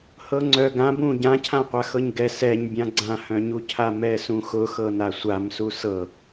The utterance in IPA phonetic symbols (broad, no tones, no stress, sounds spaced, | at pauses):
h ɤ ŋ͡ǀ œ ɡ ã b ũ ɟ ã cʰ ã qʷ a x ɤ ɲ ɡ ɛ s ɛ ɲ bʲ ã ɡ͡ǀ ã h œ̃ ɲ u cʰ a m ɛ s ũ x ʊ x ɤ n a sʷ a m s u s ɤ